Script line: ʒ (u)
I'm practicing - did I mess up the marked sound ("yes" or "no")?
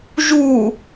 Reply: no